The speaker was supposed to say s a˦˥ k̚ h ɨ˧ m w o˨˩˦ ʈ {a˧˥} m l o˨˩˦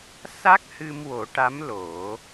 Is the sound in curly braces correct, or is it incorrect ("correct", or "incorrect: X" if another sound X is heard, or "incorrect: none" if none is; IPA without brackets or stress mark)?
correct